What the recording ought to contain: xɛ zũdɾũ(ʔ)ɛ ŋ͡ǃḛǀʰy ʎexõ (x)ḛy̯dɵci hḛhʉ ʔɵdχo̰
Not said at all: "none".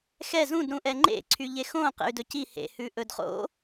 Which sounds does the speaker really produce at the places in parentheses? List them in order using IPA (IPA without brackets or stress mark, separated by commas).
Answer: ʔ, q